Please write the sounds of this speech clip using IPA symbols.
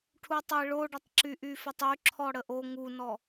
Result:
ʈʰ u tˤ ə ɪ̯ ɭ o ɖ ə tˤ ǁ y ʔ y f ə tˤ y ǁʰ ɔ ɽ ə ʔ o ŋ u n ɔ

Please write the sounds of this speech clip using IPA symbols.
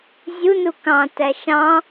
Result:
zʲ u n u k ɑ̃ t æ ʃ ɑ̃

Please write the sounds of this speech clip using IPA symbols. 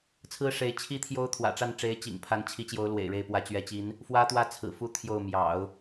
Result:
t͡sʰ ɹ̩˥ ʂ e˧˥ ɪ̯ t͡ɕʰ i˥ t̪ʰ j o˥ ʊ̯ t̪ʰ w ä̰˨˩ ʈ͡ʂ a˥˩ n ʈ͡ʂ e˧˥ ɪ̯ t͡ɕ ḭ˨˩ ŋ pʰ a˧˥ n t͡ɕʰ i˧˥ t͡ɕ j o˧˥ ʊ̯ l w ḛ˨˩ ɪ̯ ɻ e˥˩ ɪ̯ p w ä˧˥ t͡ɕ ɥ ɛ˧˥ t͡ɕ i˧˥ n | f w ä˥ t̪ w ä˥ t͡sʰ ɹ̩˨˩ f u˥ t̪ʰ j o˥˩ ʊ̯ m j ɑ̰˨˩˦ ʊ̯

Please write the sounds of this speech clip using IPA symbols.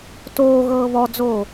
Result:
t oː ɣ ɤː β ɔ d͡z oː

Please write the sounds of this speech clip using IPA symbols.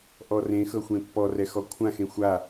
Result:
ʔ ɔ r ẽ x ɤ xʷ ẽ pː ɔ r ɛ x ɔ kʷʰ ã x ẽ xʷ a

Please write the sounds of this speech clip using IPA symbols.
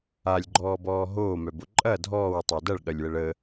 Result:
a lʲ ɡ͡ǃ ɔː b ɔː ɦ oː m œ b o ǃʼ ɐ dʱ ɔː w tˤ œ d ɐ ɭ ɠ ɐ lʲ w ə ɭ ə

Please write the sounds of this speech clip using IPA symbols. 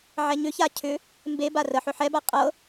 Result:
ʕ ɛ ɲ ʏ ç a cʰ ʏ | m b e b a r ə ħ ʏ ħ ɛ b a qʼ ɤ

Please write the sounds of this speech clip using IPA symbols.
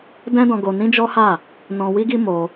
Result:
d ɛ̃˦ d ɔ̃˧ ɡ o˧ n ĩ˦ d͡ʒ ɔ˦ h a˦˨ | n ɔ̃˧ w i˦ ɡ i˦ m o˧

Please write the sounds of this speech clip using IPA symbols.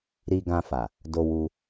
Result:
ɾ i˧ ɡ ã˧ f a˨ | d o˧ w u˧

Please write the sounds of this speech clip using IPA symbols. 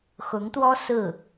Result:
x ʊ˧˥ ŋ t̪ w ɔ˥ s ɹ̩˥˩

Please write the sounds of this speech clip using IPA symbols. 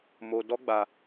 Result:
m o˧ d ɔ˦ ɡ͡b a˧

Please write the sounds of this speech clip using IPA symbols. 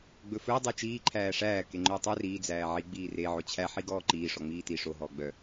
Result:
ɡ͡b ɵ f ɵː dˤ i t͡ʃ iː ǃʰ æː ʂ æː k e ŋ͡ǃ ɵː tˤ œ r iː d͡z æː ʕ i ɡ͡b iː r e ʕ o t͡ɕʰ æ ħ i ɡ ɔː ǃ iː ʂ ɔ ŋ͡m iː t i ʂ o ɦ ɔː ɡ͡b œ

